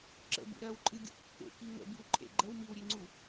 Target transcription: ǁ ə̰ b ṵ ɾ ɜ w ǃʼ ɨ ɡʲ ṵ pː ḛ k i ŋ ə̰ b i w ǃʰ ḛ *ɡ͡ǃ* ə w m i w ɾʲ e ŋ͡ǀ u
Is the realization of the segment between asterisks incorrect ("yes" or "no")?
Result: no